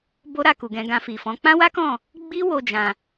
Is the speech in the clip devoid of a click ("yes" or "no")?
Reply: yes